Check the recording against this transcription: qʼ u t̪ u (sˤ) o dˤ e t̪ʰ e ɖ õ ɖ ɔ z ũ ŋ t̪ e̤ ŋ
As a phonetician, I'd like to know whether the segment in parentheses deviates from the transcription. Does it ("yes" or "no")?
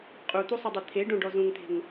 no